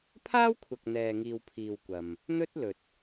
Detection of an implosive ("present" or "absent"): absent